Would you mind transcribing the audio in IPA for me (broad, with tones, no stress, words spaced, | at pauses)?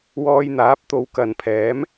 wɔː˧jn̪aː˨˥p̚t̪o˨˧w kɐ˨npʰɛː˨˥m